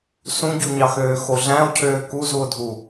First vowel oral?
no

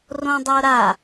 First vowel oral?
no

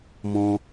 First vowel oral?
no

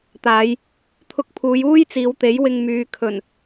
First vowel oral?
yes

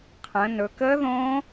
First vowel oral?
no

